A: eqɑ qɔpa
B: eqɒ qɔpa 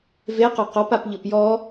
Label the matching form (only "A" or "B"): B